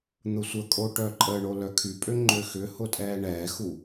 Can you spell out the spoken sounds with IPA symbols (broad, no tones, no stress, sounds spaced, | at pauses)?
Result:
n̪ ʊ sʷ ə kʼ o ʈ œ ǃʼ ə ɳ o l œ kʰ y pʼ ø ŋ͡ǃ ø x ʏ h ʊ tʼ ɛː ɳ ɛː x u